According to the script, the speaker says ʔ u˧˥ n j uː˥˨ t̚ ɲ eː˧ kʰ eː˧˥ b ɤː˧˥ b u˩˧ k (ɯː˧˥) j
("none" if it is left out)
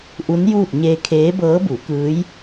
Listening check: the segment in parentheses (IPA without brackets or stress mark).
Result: ɯː˧˥